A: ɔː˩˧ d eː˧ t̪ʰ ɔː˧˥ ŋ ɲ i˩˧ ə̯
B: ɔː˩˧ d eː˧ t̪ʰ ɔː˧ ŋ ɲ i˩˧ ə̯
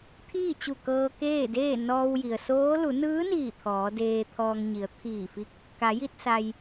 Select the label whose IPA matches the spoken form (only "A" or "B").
B